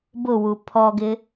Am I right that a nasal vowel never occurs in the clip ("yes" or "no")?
yes